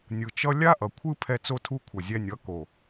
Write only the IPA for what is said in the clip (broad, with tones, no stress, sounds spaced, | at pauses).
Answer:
nʲ ɯ˨ t͡ʃ ʌ˦ lʲ a˦ ʔ ʌ˨ kʷʰ ɯ˦ pʰ ɛ˧ t͡s o˧ tʰ u˧ kʷʰ ʌ˨ zʲ ɛ˧ nʲ ʌ˨˦ k o˨